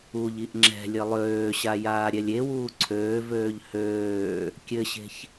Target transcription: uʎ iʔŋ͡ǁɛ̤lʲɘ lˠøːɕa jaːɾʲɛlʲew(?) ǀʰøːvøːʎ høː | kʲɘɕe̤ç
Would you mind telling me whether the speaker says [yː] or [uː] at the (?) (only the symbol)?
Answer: uː